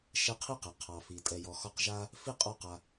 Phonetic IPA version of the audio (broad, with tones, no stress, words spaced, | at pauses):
ʃɛ˦qʰi˥qe˩ qʰɑ˩fi˩ tʼɛ˨jɔ˨xɔ˦qʒa˥ | fi˥ qʼɔ˦qa˨